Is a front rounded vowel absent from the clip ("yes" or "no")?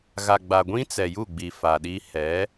yes